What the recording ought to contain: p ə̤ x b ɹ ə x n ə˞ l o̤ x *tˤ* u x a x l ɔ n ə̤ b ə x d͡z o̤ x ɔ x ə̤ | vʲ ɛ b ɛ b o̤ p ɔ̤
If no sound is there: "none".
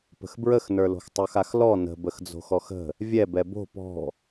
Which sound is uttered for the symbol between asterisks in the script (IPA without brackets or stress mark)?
tˤ